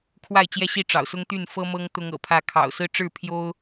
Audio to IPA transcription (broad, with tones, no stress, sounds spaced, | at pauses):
kʰ w a˥˨ ɪ̯ t͡ɕ j ɛ˥˨ ɕ i˥˨ ʈ͡ʂ ɑ̰˨˩ ʊ̯ s ʊ˦ ŋ t̪ y˥˨ n f ɤ˦ m ɤ˦ ŋ t̪ ʊ˦ ŋ ɤ̰˨˩ pʰ ä˥˨ kʰ ɑ̰˨˩ ʊ̯ s ɹ̩˦ ʈ͡ʂ ɻ̩˥˨ pʰ j o˦ ʊ̯